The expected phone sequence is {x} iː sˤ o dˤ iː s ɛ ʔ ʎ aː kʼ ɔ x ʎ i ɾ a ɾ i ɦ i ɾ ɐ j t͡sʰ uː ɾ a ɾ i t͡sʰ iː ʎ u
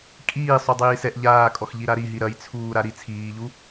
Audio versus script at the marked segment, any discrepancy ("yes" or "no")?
yes